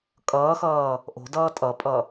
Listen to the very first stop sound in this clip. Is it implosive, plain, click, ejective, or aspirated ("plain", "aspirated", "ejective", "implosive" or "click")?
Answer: ejective